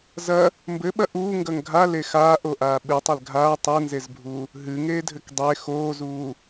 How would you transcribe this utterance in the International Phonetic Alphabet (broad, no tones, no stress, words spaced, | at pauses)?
zɐ | mbɘɓɐ ʔuːŋɡɐŋ ɡʱale xaːʔoʔaː ɓɨtˤɛl ɡʱaː tˤɛnzezbʱuː | ɦɨŋeːdʱɘk dˤe xoːzuː